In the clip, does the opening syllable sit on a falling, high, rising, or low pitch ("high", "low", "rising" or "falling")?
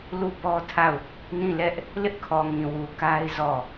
falling